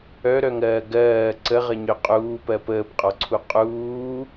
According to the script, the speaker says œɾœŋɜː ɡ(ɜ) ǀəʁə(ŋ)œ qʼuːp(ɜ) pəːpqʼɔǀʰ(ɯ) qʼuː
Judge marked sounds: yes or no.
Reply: no, no, yes, no

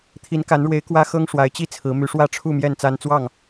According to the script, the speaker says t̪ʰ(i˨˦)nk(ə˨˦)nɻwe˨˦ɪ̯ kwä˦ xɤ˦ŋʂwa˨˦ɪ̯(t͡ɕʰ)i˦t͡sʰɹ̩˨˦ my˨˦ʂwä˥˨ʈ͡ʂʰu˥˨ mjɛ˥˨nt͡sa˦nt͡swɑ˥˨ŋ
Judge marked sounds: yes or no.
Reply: yes, no, no

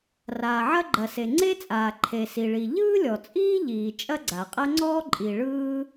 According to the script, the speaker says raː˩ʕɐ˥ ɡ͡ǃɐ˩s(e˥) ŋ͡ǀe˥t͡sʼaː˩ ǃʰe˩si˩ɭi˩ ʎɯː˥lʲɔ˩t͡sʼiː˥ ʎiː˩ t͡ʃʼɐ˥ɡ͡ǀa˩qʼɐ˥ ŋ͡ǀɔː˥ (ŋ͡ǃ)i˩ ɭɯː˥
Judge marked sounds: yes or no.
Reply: no, no

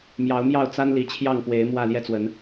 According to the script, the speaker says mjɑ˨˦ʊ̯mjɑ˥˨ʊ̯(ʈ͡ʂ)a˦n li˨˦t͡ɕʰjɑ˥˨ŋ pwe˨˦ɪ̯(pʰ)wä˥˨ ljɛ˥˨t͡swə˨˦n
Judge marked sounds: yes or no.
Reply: no, no

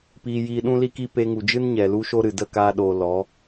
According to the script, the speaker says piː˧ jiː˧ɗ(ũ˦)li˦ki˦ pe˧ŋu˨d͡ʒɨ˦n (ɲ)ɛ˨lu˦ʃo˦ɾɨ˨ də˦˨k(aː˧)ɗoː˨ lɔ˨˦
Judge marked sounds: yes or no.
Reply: yes, yes, yes

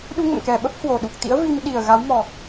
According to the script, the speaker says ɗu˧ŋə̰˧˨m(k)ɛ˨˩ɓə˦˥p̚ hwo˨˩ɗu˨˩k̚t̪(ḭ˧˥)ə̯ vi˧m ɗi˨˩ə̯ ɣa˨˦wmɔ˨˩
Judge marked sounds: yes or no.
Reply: yes, yes

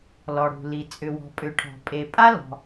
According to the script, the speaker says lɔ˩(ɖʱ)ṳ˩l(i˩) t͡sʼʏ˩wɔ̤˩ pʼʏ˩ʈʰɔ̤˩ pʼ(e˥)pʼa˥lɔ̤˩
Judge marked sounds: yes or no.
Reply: no, yes, no

